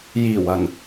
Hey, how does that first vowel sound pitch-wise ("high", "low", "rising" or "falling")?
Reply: low